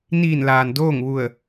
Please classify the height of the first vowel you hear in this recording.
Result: high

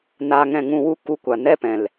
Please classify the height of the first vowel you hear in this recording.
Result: low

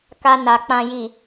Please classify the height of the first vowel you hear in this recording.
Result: low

